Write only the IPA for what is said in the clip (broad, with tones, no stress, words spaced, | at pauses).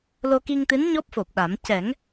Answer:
lo˧ki˧ŋt̪ɨ˧˥n ɲɔ˦˥p̚fo˨˩p̚ɗa˨˩˦m cɛ˨˩˦ŋ